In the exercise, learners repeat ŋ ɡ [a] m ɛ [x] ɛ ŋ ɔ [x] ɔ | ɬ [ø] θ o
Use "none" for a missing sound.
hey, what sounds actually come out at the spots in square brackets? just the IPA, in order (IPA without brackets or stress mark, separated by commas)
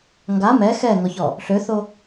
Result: a, x, ç, ø